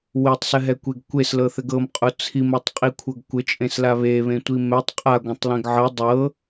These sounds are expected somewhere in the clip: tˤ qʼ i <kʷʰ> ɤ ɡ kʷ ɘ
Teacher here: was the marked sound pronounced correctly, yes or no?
yes